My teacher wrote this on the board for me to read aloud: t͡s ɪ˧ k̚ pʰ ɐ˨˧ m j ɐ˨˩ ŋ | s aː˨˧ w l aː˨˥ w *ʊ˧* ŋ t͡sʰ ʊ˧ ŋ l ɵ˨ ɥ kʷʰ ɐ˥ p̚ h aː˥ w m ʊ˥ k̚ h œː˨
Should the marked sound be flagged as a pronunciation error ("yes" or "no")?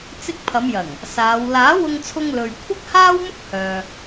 no